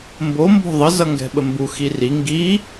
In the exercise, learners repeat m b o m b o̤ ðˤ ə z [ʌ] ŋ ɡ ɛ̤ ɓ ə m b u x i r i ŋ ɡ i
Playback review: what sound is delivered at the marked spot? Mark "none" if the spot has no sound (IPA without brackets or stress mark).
ʌ